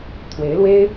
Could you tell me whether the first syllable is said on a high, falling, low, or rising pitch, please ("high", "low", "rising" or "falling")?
rising